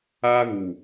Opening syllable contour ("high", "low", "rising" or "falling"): high